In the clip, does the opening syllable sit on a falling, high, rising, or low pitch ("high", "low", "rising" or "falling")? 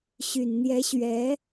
low